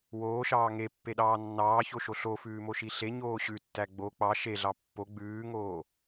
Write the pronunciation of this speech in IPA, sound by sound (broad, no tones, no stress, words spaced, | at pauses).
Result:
woːʃɑː ŋepːeɗɑː nːɑːçoʃo ɬofʉːmoʃi ɬeɲoː ɕʉtːæ ɡ͡bo k͡pɑ ʃeɮɑ pːo ɡ͡bʉːŋoː